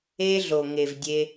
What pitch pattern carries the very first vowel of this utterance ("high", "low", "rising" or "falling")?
high